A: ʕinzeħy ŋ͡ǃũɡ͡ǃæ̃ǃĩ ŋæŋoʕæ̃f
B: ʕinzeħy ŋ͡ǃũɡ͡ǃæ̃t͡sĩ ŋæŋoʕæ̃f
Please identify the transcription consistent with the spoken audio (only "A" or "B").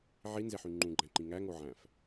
A